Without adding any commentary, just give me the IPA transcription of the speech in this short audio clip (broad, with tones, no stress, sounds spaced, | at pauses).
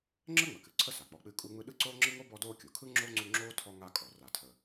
ŋ͡ǁ əː˥ ŋ͡m ə˩ k ɨ˨ ǀʰ ə˦ s a˩ k͡p ɔ˨ k͡p ɨ˦ kʼ u˦ ŋ͡m ɯ˦ ɗ ɯ˥ ǀ oː˥ ŋ͡ǁ ɯ˥ ŋ o˥ b ɔ˦ d oː˦ kʲ u˩ kʰ ɯ˥ ŋ͡ǁ o˥ ŋ͡ǀ u˦ ŋ͡ǁ oː˥ tʰ ɔ˦ ŋ a˦ kʼ ɔ˩ r a˩ tʰ ə˩